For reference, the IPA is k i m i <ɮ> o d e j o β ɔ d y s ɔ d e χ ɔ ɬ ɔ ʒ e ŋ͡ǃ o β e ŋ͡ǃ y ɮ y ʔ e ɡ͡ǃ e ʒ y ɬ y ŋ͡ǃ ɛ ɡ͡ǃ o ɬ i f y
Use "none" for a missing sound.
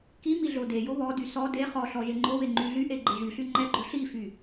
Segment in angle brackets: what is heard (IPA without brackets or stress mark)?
ɮ